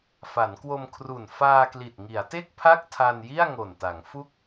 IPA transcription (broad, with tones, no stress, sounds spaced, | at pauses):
f a˩˦ n k w o˧ m kʰ r u˨˩ n f aː˧ k l i˨˩ t̚ ŋ i˩˦ a̯ t e˥˩ k̚ pʰ a˥˩ k̚ tʰ a˧ n j i˥˩ a̯ ŋ o˨˩ n t a˩˦ ŋ f u˦˥ k̚